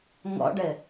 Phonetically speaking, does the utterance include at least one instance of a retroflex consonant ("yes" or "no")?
yes